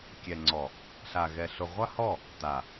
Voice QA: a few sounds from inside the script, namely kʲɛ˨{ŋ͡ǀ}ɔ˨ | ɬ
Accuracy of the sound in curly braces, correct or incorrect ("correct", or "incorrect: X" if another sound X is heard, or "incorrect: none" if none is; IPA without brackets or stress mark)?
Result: correct